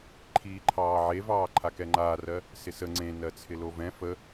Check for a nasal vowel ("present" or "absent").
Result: present